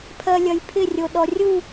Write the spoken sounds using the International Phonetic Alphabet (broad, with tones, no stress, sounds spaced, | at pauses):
pʰ ɜ˨ lʲ ɐ˨ j pʰ ɪ˦˨ rʲ o˨ ɗ ɔ˨ rʲ u˦˨